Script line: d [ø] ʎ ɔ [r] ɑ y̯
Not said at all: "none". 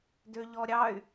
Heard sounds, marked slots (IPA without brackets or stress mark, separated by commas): ø, ɾʲ